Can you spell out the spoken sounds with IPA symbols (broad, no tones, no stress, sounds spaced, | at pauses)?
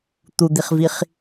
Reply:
t̪ u d̪ i χ v i χ